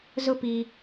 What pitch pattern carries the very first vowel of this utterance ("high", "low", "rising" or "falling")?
high